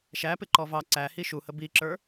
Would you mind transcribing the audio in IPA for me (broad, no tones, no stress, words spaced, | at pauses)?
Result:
ʃæpɪǃɔ vɑ ǀæhi ʃuhə biǁə˞